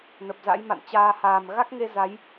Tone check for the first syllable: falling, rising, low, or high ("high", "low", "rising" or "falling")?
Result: low